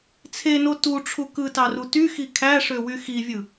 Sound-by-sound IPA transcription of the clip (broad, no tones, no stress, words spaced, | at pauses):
t͡sʰeno tuʈ͡ʂʰu kɯtɑru tyxi kʰæʂøwy xivʲɯ